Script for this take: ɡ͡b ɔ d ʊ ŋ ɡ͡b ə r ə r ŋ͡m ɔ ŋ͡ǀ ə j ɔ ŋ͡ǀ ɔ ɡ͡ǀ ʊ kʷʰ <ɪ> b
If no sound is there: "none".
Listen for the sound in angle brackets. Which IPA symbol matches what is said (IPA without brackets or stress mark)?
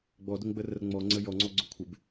ɪ